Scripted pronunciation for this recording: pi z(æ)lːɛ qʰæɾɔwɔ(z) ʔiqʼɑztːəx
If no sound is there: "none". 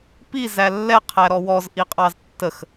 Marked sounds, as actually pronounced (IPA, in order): æ, z

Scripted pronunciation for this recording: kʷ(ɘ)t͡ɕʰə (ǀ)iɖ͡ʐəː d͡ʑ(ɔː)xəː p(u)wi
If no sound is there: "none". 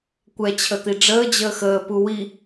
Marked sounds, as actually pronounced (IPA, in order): ɛ, t̪, əː, u

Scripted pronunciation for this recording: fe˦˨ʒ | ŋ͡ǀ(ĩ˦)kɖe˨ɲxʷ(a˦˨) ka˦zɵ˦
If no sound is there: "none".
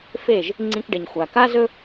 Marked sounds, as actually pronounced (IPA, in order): ĩ˦, a˨

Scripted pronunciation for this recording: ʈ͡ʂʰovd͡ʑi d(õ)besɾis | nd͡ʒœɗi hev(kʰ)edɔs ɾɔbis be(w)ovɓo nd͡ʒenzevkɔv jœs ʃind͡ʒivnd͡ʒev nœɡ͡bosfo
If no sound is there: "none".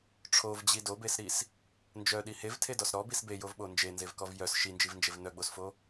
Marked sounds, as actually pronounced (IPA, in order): o, tʰ, j

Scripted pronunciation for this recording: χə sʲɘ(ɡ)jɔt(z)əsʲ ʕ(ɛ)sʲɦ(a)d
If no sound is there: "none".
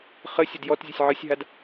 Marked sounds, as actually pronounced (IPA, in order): d, zʲ, ɨ, a

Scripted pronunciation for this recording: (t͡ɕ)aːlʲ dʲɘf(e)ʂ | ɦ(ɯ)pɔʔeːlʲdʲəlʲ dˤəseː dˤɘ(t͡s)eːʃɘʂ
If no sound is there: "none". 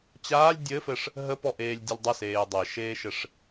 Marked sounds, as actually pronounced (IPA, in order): t͡ɕ, ɘ, ə, ʃ

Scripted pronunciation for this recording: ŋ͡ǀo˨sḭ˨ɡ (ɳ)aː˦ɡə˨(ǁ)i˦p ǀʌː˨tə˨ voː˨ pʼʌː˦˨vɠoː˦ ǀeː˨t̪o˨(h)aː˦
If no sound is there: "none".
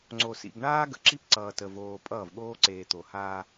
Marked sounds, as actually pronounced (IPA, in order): ɳ, ǁ, h

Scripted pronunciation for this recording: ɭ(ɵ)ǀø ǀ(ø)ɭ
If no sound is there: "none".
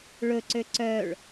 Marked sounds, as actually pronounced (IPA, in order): ɵ, œ

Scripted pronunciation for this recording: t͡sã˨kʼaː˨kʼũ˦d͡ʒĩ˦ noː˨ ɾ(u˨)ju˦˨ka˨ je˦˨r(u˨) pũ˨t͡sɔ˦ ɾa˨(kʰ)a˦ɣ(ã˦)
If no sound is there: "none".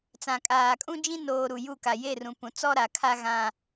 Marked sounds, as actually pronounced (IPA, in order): u˨, ũ˨, kʰ, ã˦

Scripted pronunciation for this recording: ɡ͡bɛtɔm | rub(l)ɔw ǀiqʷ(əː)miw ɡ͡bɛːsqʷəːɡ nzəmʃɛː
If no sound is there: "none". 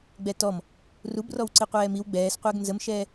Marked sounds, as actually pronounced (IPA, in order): r, ɛː

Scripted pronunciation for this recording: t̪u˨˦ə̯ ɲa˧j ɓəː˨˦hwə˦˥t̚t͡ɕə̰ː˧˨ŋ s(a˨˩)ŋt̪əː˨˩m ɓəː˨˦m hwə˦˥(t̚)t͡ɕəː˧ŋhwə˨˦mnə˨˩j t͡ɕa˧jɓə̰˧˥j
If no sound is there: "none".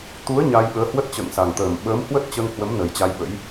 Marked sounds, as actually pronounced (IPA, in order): a˨˩, t̚

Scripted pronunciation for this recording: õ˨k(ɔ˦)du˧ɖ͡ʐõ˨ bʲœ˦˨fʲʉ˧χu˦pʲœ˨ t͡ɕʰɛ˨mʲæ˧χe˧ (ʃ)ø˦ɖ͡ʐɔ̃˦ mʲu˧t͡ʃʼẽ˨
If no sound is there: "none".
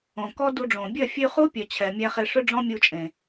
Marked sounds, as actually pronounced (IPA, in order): ɔ˦, ʂ

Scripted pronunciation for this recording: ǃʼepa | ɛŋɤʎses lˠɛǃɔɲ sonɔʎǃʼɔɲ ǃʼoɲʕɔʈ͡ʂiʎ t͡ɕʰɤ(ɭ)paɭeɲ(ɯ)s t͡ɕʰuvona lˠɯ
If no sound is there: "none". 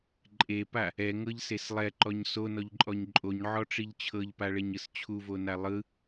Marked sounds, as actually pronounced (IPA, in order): ʎ, ɯ

